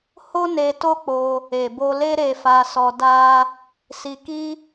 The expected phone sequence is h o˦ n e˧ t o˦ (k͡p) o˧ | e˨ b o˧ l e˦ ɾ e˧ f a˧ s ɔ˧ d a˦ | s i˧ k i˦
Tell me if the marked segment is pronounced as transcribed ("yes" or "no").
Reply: yes